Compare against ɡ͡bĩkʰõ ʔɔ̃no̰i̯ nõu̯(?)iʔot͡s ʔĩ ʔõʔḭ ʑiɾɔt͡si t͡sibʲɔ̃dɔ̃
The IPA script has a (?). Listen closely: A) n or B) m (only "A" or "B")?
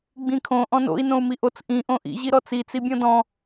B